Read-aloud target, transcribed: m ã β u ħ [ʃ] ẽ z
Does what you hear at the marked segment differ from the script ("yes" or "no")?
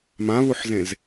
yes